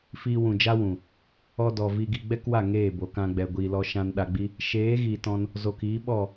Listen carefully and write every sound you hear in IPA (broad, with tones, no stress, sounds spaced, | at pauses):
f iː˧ w ũ˨ d͡ʒ a˦ w ũ˨ | ɔ˧ d ɔ˨ v i˧ ɡ i˧ ɡ͡b ɛ˦ k w a˦˨ ŋ eː˦˨ b o˨ k ã˧ ɡ͡b ɛ˨ ɡʷ iː˨ l ɔ˧ ʃ ã˧ n ɗ a˧ ɡ͡b i˦ | ʃ eː˨˦ ɣ iː˨ t ɔ̃˧ n | z o˨ k iː˨˦ ɓ ɔ˦˨